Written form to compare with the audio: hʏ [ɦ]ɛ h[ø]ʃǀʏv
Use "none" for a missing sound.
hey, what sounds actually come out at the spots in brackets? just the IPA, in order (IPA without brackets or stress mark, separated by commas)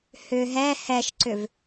ɦ, ɛ